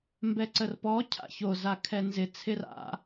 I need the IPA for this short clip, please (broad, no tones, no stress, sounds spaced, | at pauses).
m b ɛ ǀ ə r p ɔ cʰ a̰ ç o z a kʰ ɛ n z ɪ t͡sʰ ɪ r a̰